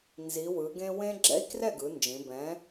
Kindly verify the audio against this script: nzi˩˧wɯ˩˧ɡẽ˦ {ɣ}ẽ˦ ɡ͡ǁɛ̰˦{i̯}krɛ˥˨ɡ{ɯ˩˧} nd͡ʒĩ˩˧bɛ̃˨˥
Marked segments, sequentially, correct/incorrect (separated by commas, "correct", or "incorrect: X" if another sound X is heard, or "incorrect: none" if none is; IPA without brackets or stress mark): incorrect: w, correct, correct